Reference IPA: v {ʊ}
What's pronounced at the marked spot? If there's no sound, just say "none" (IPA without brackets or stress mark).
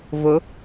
ʊ